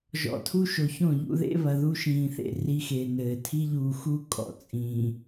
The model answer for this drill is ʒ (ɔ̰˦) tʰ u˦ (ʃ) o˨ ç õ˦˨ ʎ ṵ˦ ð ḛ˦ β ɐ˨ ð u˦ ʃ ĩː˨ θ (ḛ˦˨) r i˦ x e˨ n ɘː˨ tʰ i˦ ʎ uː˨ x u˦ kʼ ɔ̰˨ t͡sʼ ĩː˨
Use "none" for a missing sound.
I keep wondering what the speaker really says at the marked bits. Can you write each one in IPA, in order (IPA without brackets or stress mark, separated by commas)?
ɔ̰˨, ʃ, ḛ˦˨